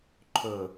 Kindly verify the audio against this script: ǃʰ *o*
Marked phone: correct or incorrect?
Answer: incorrect